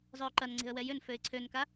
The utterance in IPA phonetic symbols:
zˤøʊ̯ǃɐn ŋ͡ǀe̤ə̯wɛjʏn føɪ̯ǀʰønka

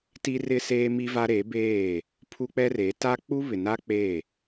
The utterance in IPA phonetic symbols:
ti˦rɪ˦seː˦ mi˦va˦ɾe˨˦beː˦˨ | pʰu˦k͡pɛ˦re˨˦ ta˦k͡pu˦βɪ˨na˦ k͡pe˦˨

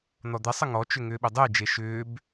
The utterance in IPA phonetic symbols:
n̪ɔd̪ɛsˤə ŋɔt͡ʃʏ ŋʏːɓʏdˤəe̯d͡ʒe ʃʏːb

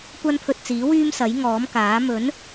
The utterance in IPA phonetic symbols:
kʷɐ˥npʰɵ˧t̚t͡siː˨˥wyː˥m sɐ˨˥jŋɔː˨˥mkaː˨˥ mɵ˨˥n

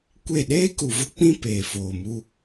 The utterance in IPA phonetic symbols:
kʷe˦˨ ɗeː˦ku˨vʊ˦k͡pĩ˦ peː˨foː˨mu˦

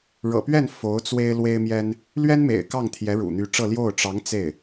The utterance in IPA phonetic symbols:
ɻɤ̰˨˩pɥɛ˥˩n fo˧˥ʊ̯ t͡swe˥ɪ̯lwe˥ɪ̯mjɛ˥n | lɥɛ˥nmḛ˨˩ɪ̯ kɑ˥˩ŋt̪ʰjɛ˧˥ ɻṵ˨˩n̪y˧˥ ʈ͡ʂɤ˥˧ ljo˥˩ʊ̯ ʈ͡ʂɑ˧˥ŋ t͡se˥˩ɪ̯

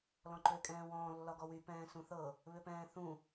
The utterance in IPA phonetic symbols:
lɔ̃ǃʏːkʼɛ̃ːwɔ̃ː lːɒɡɔwy pɛ̃ːsũθɤ | βʏpɛ̃ːθũ

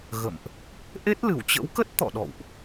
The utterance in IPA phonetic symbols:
ɣə̰˧˨mʔ | ʔe˦˥t̚lɨ˧˩wt͡ɕə̰˧˥wkə˦˥t̚ t̪ɔ̰˧˨ɗɔ̰˧˨wʔ

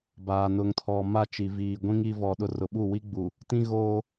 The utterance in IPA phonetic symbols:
baː˨nʊ˨ŋtʰɔ˨ ma˦˨t͡ʃi˨ viː˨ɡʷĩ˦ŋ i˦vɔ˨ɗʊ˦ rʊ˨ɓu˦˨wi˦ɡ͡bu˨ | tĩ˦ɣoː˦

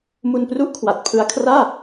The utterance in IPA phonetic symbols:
mu˧npru˥˩ʔkʰwa˨˩t̚ pʰɯ˧a̯kʰraː˥˩

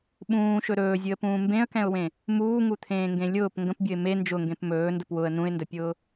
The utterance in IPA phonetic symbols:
ɓũːʃɵ ɾɵːzʲɨə̯pũː mbẽə̯kɛ̃ʊ̯wẽ | muːŋut̪ʰẽːŋɡẽ lʲʊːp ŋɡə̃pbʲɵɪ̯ me nd͡ʒʊŋɡẽp mɵːndəp wʊə̯ nũɪ̯ndəpʲʊː

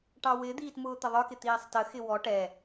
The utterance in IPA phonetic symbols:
ʈɑwɪd̪iːt mʊːt̪əðˤə˞kɪ t̪iːsˤtəxɪ wɔ ʈɛ

